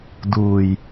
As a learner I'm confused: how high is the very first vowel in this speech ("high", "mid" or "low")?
high